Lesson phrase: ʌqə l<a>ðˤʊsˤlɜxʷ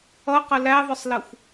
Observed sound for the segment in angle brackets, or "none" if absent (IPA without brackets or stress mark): æ